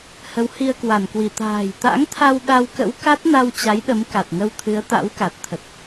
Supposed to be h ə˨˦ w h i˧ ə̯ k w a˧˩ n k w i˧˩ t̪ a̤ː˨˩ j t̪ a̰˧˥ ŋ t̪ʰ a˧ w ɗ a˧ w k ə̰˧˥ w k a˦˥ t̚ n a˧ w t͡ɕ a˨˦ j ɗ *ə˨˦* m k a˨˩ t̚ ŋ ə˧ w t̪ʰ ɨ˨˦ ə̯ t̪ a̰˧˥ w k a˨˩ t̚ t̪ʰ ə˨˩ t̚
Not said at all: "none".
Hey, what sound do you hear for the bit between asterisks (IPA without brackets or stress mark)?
ə˨˦